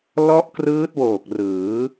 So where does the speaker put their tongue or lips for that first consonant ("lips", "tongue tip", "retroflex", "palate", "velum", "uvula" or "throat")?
tongue tip